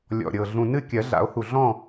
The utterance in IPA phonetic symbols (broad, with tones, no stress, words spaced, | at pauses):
lʲɔ̰˨˩ɾʲɤ˨˩ ɮũ˨˩nɨ˥˨ kʲɜ˨˩˦ɮa̰˨˩˦o̯hu˨˩ ɮɔ̃˥˨